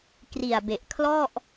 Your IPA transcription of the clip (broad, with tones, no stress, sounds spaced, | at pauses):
k r i˨˩ a̯ b e˨˩ ʔ kʰ l ɔ˥˩ ʔ